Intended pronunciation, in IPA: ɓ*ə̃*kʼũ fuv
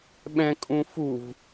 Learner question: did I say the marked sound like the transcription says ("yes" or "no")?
no